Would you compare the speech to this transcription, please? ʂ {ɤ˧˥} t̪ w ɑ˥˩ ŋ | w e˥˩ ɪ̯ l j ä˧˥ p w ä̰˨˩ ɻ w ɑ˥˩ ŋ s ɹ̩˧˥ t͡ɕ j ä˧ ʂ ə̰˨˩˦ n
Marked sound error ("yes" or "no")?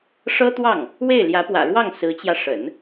yes